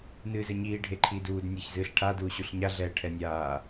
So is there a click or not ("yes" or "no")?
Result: yes